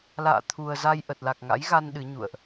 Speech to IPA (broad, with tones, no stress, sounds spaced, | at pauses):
l a̰ː˧˨ t̪ʰ u˨˩ ə̯ z a˧ j ʔ ə˨˩ t̚ l a˨˩ k̚ ŋ a̰˧˥ j ɣ a˧ n ɗ ɨ˨˦ ɲ ṵ˧˨ ə̯ ʔ